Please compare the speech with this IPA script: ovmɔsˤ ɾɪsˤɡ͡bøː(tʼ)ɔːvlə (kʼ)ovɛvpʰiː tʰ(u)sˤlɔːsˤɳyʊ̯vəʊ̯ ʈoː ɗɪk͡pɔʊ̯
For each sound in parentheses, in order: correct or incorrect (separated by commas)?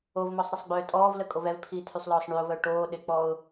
correct, correct, incorrect